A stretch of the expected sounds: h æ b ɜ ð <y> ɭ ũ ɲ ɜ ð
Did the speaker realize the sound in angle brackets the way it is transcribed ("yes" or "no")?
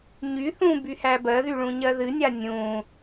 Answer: yes